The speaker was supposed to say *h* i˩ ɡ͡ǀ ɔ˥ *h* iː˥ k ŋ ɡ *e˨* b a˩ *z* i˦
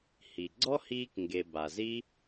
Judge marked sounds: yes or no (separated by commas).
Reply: yes, yes, yes, yes